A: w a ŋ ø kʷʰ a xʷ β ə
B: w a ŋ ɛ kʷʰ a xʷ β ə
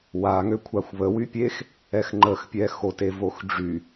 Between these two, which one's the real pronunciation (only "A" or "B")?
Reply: A